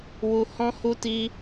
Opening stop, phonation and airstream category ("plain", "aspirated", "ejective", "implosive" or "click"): plain